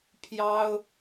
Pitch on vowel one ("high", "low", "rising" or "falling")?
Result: high